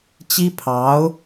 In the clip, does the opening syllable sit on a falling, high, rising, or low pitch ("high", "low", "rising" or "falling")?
high